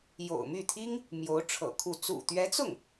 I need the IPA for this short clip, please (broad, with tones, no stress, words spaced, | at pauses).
jo̰˨˩ʊ̯my˥˩t̪ʰi˥ŋ | mjo˧˥ʊ̯ʈ͡ʂʰɤ̰˨˩ kʰu˥˩ t͡sṵ˨˩t̪ɥɛ˧˥t͡sʊ˥˩ŋ